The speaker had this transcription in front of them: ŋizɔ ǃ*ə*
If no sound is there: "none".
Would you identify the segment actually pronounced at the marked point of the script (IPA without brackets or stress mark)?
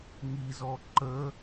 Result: ə